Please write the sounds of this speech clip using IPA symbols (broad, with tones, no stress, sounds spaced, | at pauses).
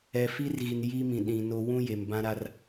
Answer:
ɛ˨ f i˦ r ɣ i˨ n j i˦ m ĩ˨ ɗ ĩ˨ n o˦ w ũ˦ j e˨ m b ã˦ ɾ a˦ r